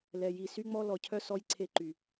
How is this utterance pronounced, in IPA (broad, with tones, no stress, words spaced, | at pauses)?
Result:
lɛ˨ji˨ sy˦ŋ͡mɔ˦ lɔ˨cʰœ˦ sɔ˦jǀʰe˦ǃy˨